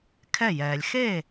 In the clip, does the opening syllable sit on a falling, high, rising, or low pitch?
falling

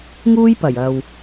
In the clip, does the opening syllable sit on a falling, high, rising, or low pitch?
high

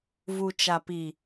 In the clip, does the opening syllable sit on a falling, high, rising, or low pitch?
low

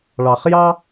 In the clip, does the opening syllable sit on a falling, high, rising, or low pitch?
low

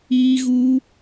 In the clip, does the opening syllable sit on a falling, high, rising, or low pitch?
high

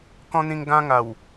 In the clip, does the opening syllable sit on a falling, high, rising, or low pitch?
high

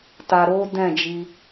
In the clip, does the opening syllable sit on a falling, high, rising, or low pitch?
low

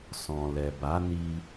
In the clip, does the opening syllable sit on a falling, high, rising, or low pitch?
low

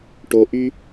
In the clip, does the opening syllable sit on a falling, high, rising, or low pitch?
low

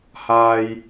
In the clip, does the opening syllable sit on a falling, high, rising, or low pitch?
low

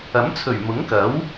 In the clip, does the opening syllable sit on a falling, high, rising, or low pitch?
rising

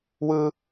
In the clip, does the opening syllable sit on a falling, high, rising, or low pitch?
high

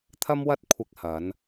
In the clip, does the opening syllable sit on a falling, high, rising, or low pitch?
high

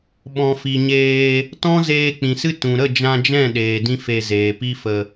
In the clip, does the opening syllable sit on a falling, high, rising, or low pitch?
low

